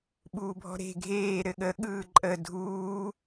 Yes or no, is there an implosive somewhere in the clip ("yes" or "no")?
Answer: yes